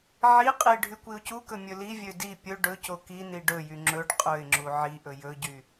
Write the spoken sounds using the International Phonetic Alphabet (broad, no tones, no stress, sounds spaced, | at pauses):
ʕ i qʼ i ɖʱ y kʷ i ʊ̯ c u k ɵ mʲ ɵ l i vʲ ø d i pʲ ɵ ɖ ɵ c o k i n i ɖ ɵ j y ŋ͡ǁ ɵ ɖ qʼ ɵ ɪ̯ ŋ͡ǁ u ʕ i ʔ ɵ j ɵ ɟ y